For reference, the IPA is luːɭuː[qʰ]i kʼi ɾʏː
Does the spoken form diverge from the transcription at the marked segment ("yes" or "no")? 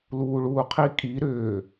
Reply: no